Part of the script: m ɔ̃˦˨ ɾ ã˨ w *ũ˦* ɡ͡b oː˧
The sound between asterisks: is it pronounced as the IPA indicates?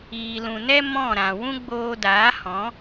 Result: yes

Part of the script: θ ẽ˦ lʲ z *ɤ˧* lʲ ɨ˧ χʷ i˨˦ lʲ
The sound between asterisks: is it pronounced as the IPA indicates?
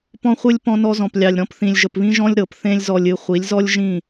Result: no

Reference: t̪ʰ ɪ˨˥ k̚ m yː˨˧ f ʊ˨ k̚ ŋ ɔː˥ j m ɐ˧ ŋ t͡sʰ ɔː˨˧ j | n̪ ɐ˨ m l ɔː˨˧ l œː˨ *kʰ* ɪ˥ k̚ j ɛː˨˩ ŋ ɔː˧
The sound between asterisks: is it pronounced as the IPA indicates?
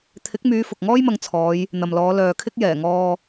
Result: yes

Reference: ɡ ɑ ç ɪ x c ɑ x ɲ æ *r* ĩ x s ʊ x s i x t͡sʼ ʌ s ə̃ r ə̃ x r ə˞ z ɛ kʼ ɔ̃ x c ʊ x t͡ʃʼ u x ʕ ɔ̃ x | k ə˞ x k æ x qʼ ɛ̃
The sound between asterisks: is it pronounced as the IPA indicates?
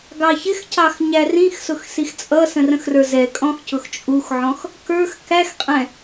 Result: yes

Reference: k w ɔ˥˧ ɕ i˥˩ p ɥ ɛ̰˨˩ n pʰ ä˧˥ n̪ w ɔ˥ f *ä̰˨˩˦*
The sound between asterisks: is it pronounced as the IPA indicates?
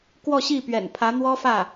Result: no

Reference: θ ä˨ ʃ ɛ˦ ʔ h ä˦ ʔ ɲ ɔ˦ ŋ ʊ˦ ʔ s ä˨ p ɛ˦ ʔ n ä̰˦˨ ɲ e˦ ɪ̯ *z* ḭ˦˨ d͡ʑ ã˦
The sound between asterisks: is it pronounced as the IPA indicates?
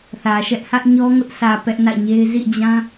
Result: yes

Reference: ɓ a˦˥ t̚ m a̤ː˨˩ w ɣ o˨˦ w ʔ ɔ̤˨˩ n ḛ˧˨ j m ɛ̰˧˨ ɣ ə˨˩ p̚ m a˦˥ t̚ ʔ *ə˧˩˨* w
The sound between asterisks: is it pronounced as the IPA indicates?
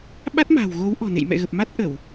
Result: yes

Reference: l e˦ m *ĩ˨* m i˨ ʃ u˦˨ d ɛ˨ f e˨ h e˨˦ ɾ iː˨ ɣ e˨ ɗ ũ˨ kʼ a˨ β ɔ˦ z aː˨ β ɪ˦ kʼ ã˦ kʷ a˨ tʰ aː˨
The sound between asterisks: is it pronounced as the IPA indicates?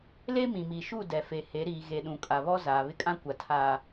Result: yes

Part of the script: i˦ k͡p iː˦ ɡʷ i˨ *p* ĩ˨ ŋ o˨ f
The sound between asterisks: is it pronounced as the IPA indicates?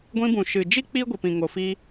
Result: yes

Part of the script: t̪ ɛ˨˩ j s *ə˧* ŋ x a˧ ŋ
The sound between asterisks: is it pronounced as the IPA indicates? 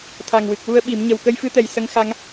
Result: yes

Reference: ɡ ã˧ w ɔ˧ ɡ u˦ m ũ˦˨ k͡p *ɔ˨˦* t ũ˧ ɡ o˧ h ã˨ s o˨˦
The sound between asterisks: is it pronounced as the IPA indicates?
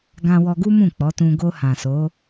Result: yes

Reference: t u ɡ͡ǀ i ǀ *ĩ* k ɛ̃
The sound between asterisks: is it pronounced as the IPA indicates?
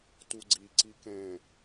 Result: no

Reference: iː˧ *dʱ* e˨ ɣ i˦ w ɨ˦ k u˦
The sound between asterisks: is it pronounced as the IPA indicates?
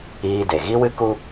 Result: no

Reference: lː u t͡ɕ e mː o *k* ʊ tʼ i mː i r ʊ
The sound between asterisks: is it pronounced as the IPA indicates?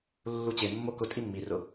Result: yes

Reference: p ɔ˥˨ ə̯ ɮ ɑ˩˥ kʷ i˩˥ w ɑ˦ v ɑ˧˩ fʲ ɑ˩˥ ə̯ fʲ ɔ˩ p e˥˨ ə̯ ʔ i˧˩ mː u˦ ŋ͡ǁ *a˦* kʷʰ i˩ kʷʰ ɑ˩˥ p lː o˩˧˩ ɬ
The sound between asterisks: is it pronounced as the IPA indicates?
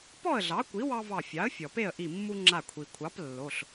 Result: no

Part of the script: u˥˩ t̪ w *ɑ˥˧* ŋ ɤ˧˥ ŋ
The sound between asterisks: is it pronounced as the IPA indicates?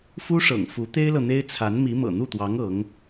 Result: no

